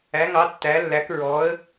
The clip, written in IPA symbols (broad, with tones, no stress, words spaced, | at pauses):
æ˩˧ŋɑ˩˧ tːæ˩˧lːæ˩˧k ɹɔ˩˧ə̯